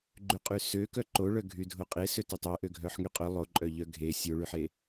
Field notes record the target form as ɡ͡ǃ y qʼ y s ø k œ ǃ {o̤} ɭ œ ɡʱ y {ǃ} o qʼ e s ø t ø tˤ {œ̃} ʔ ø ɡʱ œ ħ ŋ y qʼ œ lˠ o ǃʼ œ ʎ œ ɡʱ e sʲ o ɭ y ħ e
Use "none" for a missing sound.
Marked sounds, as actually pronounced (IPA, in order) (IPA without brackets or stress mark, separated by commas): o, dʱ, œ